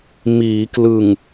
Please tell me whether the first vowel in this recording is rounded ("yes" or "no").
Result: no